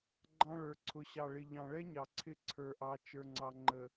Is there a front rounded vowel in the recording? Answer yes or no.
no